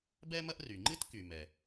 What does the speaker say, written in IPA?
b ɛ˥ m ɐ˥ ʔ r y˩ ŋ͡ǃ ɨ˥ t k y˩ m ɛ˩

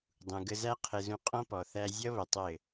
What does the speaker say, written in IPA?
dˤ ũ˨ ɡ ə˧ z æ˦ qʰ ɘ˧ z ũ˧ qʼ ɔ̃˦ p ɔ˨ θ æ˧ zʲ ʌ˦ β ə˨ tˤ ɘ˦˨

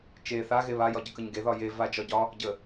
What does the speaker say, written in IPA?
t͡ʃ e θ a ɣ e β a j ɒ ɟ ə k ə ɲ ɡ e ð ɒ j e v a d͡ʒ ɒ ɟ ɒ | ɟ ə

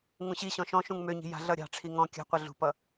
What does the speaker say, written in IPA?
ŋ ũ ɕ i ɕ ɔ̃ ʃ ɔ̃ ʃ ũ ŋ m ø ɲ i̤ j a̤ ɮ ʌ ɾʲ ɑ̤ ʈ͡ʂʰ i ŋ ɔ̃ kʲ a̤ qʷ ɘ ɮ ṳ p ʌ

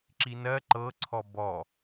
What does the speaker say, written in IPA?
ǁ i n ɜ ǃ ɤ ǀʰ ɔ b ɔ

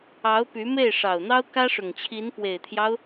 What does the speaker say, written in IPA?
ɑ˧˥ ʊ̯ p y˧˥ m e˥˩ ɪ̯ ʂ ɑ˨˩ ʊ̯ n̪ ɑ˥ ʊ̯ k ä˥ ʂ ʊ˨˩ ŋ t͡ɕʰ i˧˥ n p w e˨˩ ɪ̯ t̪ʰ j ɑ˦ ʊ̯

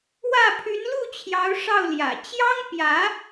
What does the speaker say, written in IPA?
w ä˥˩ pʰ y˧˥ n l u˥˩ t͡ɕʰ j ɑ˧˥ ʊ̯ ʂ ɑ˥˩ ʊ̯ l j ä̰˨˩ t͡ɕ j ɑ˥ ŋ p j ä˧˥

